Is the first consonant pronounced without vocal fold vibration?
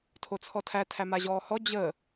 yes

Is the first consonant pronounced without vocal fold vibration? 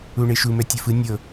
no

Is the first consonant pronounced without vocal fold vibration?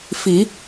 yes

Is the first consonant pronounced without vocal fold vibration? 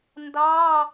no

